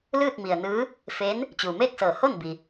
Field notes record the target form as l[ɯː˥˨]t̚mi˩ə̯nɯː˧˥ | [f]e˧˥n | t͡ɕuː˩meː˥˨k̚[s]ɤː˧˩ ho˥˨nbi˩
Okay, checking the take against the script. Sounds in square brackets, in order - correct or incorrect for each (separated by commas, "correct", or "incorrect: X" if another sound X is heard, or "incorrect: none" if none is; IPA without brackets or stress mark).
correct, correct, correct